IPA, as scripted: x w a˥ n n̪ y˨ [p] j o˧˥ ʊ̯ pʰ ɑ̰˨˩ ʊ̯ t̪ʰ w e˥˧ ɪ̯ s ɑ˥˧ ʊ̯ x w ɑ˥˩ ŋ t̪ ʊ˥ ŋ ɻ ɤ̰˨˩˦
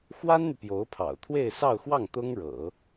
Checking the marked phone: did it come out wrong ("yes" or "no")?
no